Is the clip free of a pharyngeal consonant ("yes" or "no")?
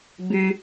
yes